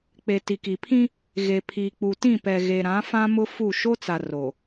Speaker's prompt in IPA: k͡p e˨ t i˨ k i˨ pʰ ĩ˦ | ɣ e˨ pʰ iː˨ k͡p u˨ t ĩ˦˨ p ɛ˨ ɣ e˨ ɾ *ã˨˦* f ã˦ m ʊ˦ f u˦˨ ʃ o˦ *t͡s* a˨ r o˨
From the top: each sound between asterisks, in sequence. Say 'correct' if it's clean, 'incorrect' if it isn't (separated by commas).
correct, correct